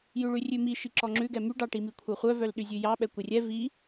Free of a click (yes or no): no